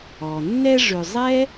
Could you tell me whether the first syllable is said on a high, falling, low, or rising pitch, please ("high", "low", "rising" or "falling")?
low